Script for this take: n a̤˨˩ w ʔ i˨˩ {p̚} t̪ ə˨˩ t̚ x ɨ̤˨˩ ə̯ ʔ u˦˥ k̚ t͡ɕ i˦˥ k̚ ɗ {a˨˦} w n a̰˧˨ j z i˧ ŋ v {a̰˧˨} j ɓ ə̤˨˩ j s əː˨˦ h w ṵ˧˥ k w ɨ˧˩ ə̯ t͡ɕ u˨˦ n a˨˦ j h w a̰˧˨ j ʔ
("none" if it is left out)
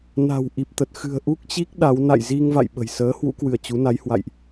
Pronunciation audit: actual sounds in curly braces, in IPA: p̚, a˨˦, a̰˧˨

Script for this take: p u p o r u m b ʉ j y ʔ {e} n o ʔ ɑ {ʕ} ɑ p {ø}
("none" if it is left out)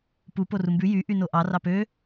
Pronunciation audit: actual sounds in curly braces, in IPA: y, r, ø

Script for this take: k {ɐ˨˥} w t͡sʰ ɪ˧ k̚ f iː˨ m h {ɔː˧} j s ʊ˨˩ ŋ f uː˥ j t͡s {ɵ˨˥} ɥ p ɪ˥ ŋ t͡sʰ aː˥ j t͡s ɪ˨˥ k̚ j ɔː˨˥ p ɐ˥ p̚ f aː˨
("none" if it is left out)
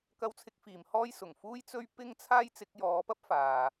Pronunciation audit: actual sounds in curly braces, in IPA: ɐ˧, ɔː˥, ɵ˥

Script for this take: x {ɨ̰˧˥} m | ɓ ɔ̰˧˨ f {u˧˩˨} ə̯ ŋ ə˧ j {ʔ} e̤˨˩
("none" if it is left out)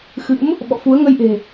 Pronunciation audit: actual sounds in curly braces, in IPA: ɨ̰˧˥, u˨˦, ʔ

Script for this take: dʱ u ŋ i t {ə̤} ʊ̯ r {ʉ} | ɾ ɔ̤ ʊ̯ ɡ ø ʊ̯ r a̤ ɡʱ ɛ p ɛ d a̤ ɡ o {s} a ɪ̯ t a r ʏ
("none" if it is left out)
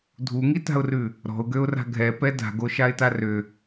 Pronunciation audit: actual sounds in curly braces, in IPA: a̤, ʉ, ʃ

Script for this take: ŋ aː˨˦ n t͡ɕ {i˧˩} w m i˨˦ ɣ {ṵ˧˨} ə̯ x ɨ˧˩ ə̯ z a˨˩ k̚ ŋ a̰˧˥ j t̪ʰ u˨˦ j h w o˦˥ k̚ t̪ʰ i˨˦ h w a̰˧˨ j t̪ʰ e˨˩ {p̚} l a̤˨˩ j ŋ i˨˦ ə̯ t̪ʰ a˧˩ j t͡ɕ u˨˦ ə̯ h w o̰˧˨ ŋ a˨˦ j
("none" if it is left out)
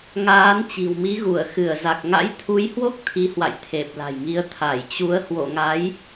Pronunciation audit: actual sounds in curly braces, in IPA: i̤˨˩, u˧˩, p̚

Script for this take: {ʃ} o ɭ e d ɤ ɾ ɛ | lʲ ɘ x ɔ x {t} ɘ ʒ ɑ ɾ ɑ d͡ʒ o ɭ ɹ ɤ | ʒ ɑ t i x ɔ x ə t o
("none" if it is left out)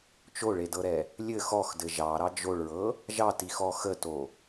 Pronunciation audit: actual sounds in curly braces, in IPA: t͡ʃ, d

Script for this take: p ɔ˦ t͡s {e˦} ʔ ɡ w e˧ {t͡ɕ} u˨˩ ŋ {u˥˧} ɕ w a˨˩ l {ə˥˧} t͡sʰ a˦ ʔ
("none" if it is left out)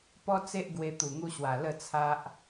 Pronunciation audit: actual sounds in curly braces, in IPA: e˦, t̪, u˧, ə˥˧

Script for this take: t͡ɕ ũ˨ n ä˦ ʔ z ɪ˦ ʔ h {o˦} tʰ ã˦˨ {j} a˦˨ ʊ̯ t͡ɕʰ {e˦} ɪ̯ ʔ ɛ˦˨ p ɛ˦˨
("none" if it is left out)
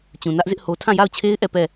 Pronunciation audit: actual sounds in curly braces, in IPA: o˦, j, e˦

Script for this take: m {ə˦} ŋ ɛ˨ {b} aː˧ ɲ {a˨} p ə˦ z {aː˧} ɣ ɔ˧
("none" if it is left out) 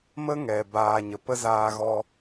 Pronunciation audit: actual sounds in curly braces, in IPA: ə˦, b, ə˨, aː˧

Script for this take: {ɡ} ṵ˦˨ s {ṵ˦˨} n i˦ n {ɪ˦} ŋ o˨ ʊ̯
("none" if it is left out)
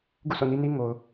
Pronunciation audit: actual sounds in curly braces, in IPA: ɡ, o̰˦˨, i˦

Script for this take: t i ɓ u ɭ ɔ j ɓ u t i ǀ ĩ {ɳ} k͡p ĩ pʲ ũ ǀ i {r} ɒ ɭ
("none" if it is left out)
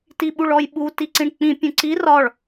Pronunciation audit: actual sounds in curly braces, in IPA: ɳ, r

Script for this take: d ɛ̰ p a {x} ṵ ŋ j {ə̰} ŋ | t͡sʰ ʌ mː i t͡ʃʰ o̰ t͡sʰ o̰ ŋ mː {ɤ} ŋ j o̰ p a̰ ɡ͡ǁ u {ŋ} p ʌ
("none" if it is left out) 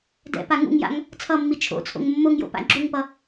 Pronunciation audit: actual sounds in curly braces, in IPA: ŋ, a̰, o, ŋ

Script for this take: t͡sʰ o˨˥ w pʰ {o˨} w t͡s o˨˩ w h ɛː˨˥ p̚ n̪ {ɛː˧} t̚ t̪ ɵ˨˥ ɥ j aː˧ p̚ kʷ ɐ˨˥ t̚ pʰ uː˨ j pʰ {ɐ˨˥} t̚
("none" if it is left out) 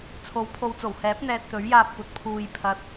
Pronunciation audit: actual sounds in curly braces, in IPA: o˨, ɛː˧, ɐ˨

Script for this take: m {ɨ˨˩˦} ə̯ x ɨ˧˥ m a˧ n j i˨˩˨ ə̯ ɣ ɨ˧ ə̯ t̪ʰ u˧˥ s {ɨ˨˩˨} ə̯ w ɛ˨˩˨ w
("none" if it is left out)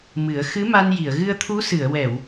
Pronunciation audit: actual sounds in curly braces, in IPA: ɨ˨˩˦, ɨ˨˩˨

